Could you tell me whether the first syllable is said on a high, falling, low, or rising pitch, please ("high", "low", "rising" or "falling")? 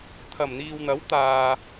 low